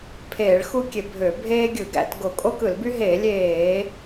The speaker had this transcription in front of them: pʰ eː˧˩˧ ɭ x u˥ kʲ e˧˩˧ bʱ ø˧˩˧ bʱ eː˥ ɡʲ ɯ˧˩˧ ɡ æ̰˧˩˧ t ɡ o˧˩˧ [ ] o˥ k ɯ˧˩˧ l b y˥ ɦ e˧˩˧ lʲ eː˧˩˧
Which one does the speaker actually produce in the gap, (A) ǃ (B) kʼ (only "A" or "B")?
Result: B